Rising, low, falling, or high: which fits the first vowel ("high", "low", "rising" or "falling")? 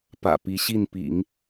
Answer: low